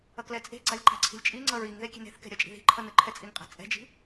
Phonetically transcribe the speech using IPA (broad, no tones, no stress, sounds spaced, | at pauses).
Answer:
ʌ k l ɛ t͡sʼ e̤ ɡ͡ǀ a lʲ ǃ a̤ ǀʰ i̤ lʲ t͡ʃʼ i ŋ͡ǀ ʌ ɹ i ŋ ð e kʲ e̤ n e̤ θ k ɛ̤ ɾʲ ʌ t͡ʃʼ i̤ ð i̤ ǃʰ ʌ n ɯ ǃʰ ɛ t͡sʼ i ŋ qʼ a̤ t͡sʼ ɛ̤ d͡ʒ i̤